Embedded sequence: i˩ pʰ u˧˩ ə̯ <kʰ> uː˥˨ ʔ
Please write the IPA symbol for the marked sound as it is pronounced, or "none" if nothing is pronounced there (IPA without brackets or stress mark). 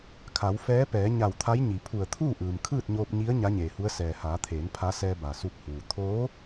t̪ʰ